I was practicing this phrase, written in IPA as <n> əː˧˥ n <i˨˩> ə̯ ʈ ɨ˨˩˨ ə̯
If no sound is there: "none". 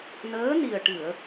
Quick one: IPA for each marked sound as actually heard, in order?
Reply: n, i˨˩

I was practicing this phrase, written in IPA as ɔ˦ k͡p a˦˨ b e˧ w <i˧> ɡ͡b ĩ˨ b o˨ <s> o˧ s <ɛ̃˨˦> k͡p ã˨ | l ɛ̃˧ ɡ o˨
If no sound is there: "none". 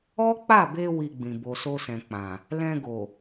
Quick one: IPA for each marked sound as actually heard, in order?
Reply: i˧, s, ɛ̃˨

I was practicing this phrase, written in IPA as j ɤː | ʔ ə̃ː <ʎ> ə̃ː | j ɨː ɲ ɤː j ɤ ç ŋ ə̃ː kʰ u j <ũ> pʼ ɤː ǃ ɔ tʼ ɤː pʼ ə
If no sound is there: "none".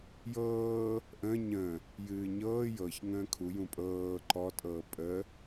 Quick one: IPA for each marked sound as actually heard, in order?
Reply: ɲ, ũ

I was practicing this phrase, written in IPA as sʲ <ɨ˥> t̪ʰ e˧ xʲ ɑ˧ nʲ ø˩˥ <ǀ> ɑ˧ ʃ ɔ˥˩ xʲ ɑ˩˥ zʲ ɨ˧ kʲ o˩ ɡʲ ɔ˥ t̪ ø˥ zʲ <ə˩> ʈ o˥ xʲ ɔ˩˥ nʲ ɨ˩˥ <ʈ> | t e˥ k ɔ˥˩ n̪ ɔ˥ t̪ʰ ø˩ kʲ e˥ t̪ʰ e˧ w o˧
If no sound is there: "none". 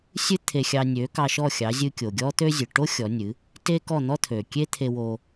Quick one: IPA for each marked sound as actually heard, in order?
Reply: ɨ˥, k, ɨ˩, none

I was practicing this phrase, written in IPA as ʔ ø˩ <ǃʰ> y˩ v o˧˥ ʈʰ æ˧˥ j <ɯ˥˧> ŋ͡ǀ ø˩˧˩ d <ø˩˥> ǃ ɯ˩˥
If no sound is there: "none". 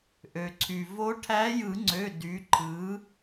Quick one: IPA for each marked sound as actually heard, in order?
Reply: ǀʰ, ɯ˨˩˦, y˩˥

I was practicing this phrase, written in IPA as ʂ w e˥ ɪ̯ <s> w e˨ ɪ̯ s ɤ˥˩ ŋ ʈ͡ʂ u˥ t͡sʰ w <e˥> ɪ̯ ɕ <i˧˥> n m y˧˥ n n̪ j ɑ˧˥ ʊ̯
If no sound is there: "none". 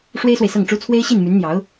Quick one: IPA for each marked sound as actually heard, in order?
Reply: s, e˥, i˥˩

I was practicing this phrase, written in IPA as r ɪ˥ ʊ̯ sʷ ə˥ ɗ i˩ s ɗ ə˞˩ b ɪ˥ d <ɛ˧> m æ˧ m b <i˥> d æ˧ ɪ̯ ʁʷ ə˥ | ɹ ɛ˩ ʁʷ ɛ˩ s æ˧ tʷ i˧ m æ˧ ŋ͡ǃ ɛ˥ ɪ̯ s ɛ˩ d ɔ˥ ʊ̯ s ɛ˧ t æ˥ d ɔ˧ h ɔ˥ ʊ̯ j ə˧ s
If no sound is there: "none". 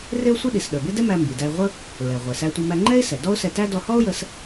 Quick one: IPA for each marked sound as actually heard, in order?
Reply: ɛ˥, i˩

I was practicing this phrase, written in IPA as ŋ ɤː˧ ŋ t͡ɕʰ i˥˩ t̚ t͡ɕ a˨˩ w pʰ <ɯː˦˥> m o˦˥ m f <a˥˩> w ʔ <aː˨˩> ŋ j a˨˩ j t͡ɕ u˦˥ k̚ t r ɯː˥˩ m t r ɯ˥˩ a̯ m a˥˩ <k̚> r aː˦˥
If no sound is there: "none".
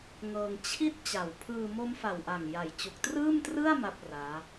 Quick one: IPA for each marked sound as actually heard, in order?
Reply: ɯː˧, a˨˩, a˨˩, p̚

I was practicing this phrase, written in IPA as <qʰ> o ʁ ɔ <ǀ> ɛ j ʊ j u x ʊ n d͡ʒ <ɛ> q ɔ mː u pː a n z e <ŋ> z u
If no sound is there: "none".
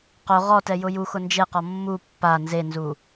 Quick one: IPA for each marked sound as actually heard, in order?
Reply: q, t, e, n

